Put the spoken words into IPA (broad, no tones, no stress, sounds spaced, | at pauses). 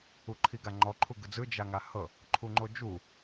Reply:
u ǃʰ i ɡ a ŋ͡ǃ ɔ ǃʰ u ɡ ɯ d͡z ɯ d͡ʒ a ŋ a h ɤ | ǃʰ u ŋ͡ǃ o d͡ʒ u